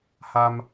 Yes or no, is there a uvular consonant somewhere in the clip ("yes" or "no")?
no